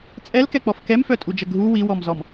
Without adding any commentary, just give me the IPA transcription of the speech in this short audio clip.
t͡sʼ ɛ l k ɛ k͡p ɔ f k ɛ m f œ tʼ u d͡ʒ ə ɡʱ u w i w ɔ m z ɔ m

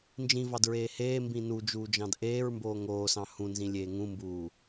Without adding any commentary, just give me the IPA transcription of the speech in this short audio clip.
n d͡ʒ ĩ v ɑ d ɹ eː h eː m b ĩ n u d͡ʒ uː d͡ʒ ɑ̃ d ʔ eː ɹ m b oː ŋ oː s ɑ̃ h ũ n z ĩ lʲ eː ŋ ũ m b uː

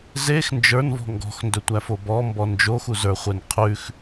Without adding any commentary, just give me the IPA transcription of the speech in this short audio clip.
z e x n d͡ʒ ə˞ n v ɔ̤ ŋ ɡ ɔ̤ x n d ɵ tʷ æ f o b ɔ m b ɔ n d͡ʒ o x u z ə˞ χʷ e n qʰ ʉ x

